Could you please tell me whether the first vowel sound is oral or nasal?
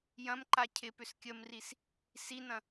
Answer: nasal